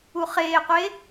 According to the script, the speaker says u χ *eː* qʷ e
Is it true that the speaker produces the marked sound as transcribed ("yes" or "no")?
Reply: yes